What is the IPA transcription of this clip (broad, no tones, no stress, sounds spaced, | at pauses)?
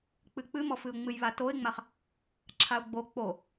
k͡p ɨ k͡p ɨ m ɔ f ɨ ʊ̯ ŋ͡m ɨ j β a t o ɪ̯ ŋ͡m a χ | ǁʰ a ʊ̯ ɡ͡b o k͡p o